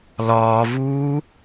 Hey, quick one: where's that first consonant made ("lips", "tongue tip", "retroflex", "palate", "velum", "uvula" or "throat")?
tongue tip